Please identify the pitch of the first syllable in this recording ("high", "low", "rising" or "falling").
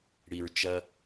low